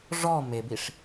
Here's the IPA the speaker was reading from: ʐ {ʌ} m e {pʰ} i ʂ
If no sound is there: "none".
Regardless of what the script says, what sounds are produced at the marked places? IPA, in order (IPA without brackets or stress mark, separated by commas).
ɔ, b